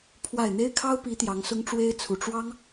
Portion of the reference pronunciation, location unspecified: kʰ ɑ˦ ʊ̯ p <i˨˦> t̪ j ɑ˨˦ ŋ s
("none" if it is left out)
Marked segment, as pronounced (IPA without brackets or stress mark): i˨˦